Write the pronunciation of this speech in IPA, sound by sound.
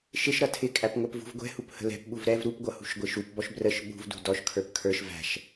ʃ ɪ ʃ ɾ ʌ tʰ ɪ kʼ æ p ŋʷ ɛ p v ṳ v ɡʷ ɛ̤ h u p h ə̤ l ɛ̤ p ɓ u v ɾ ɛ v ɾ u p ɡʷ ʌ h ṳ ʃ ɡʷ ɪ ʃ u p b ɔ ʃ b r ə ʃ ɓ ṳ v d ṳ d ɔ ʃ kʰ ə˞ p kʰ ə˞ ʃ v æ̤ ʃ

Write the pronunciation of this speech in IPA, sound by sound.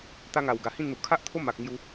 t̪ a˧ ŋ a˨˩ w ɡ a˨˩ h ĩ˥˧ n n̪ u˨˩ kʰ a˦ ʔ t̪ʰ o˦ m a˨ k̚ ŋ j u˧

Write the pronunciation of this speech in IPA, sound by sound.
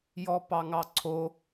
j ɔ p ɑ ŋ ɑ ǀʰ o

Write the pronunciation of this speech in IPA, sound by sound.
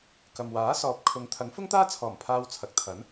k ɐ˨ m w aː˨˥ s ɔː˨ p̚ kʰ ʊ˨˧ ŋ t̪ʰ ɐ˨˥ ŋ f ʊ˥ ŋ t̪ aː˥ t͡sʰ ɔː˨˩ m pʰ aː˧ w t͡sʰ ɐ˨ k̚ t̪ʰ ɐ˨˥ n

